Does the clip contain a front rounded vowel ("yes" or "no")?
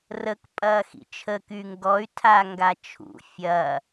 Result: yes